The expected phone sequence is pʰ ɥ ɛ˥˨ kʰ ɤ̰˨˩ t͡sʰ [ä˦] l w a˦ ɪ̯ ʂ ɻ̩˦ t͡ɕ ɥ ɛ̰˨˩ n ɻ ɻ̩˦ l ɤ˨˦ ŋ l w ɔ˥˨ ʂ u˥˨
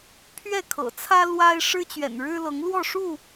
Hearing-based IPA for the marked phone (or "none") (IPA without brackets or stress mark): ä˦